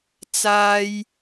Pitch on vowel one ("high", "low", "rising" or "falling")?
high